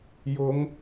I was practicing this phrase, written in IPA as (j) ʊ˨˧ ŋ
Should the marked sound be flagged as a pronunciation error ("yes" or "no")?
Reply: no